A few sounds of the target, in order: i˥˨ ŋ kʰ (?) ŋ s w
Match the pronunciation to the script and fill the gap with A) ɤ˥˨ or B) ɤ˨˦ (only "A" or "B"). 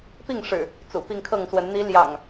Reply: A